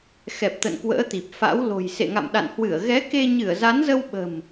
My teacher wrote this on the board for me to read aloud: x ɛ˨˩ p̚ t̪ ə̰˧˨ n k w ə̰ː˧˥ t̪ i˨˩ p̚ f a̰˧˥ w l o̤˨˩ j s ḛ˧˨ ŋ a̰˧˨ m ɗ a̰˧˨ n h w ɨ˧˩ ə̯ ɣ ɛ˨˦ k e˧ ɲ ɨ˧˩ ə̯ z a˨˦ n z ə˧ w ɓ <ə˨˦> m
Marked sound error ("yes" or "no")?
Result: yes